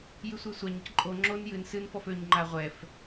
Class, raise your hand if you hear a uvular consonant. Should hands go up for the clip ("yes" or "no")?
yes